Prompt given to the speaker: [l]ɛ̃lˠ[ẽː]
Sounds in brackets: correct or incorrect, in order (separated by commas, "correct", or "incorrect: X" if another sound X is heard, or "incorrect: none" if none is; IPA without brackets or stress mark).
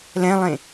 correct, incorrect: ẽ